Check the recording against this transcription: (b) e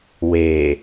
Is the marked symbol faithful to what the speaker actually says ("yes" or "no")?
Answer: no